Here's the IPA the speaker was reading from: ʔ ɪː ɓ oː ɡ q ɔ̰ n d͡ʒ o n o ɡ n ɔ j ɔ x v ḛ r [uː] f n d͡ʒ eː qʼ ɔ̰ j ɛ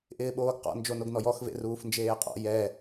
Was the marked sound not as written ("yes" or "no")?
no